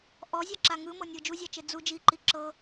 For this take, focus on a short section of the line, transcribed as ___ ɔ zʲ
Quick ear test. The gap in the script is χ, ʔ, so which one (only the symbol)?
ʔ